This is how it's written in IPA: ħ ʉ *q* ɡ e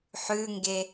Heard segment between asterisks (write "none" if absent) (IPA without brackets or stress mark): ŋ